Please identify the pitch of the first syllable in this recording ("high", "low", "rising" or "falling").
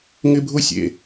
high